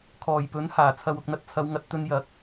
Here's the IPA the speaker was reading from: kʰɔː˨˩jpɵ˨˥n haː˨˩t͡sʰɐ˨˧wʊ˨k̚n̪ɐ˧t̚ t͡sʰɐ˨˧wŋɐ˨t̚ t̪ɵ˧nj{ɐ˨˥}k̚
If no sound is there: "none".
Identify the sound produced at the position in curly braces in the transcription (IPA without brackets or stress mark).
ɐ˨˥